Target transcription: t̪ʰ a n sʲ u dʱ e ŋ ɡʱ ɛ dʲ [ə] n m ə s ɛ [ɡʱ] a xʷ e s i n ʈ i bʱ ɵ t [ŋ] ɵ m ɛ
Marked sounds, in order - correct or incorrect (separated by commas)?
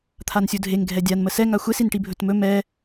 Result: incorrect, incorrect, incorrect